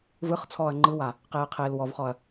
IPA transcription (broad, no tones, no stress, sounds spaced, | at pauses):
v ɯ χ t͡sʰ ɔː ɐ̯ ŋ͡ǃ ɯ w a | q eː qʰ eː l w ɔ v χ ɔ ɐ̯